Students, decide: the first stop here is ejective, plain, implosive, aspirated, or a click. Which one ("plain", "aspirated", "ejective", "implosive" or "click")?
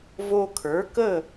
aspirated